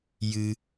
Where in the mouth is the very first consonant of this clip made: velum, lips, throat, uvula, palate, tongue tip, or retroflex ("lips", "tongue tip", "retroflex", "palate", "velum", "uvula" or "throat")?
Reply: palate